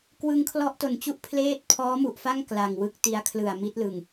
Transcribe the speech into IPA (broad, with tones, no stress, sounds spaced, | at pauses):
k w ɯ˧ ŋ kʰ l ɔ˥˩ ʔ t o˨˩ n t͡ɕ u˥˩ ʔ pʰ l eː˥˩ t̚ pʰ ɔː˦˥ m u˨˩ ʔ f a˥˩ ŋ k l a˨˩ ŋ w ɯ˦˥ k̚ t i˧ a̯ kʰ l ɯ˨˩ a̯ m i˦˥ t̚ l ɯ˨˩ ŋ